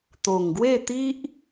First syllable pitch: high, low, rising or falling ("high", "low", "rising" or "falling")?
low